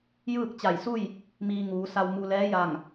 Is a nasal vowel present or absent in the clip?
absent